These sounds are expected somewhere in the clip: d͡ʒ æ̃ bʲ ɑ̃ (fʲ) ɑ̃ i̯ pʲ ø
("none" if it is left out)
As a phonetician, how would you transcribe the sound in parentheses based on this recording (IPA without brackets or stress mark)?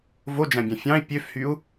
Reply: fʲ